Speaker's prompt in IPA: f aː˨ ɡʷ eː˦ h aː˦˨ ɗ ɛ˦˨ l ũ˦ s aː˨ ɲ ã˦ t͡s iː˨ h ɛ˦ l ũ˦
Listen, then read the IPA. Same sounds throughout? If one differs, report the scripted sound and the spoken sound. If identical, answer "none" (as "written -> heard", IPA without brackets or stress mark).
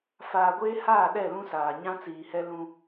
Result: none